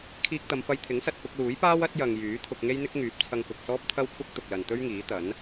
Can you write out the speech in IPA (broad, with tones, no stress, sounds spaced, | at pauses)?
kʰ iː˧ k̚ t̪ ɐ˨˧ m f ɐ˧ j t̪ʰ ɪ˨˥ ŋ s ɐ˨ t̚ p ʊ˧ k̚ l uː˨˥ j p aː˥ w ɐ˥ t̚ j ɐ˨ ŋ j yː˨˥ t̪ʰ ʊ˧ k̚ ŋ e˥ j n̪ ɪ˥ k̚ ŋ yː˨˥ p̚ t͡sʰ ɐ˧ ŋ k ʊ˨ k̚ s ɔː˥ p̚ t̪ʰ ɐ˥ w kʷʰ ɐ˥ k̚ t̪ ʊ˨ k̚ l ɐ˨ n t̪ ɵ˥ ɥ ŋ iː˨˥ t̪ ɐ˨˥ n